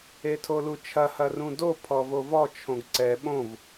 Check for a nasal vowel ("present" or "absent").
present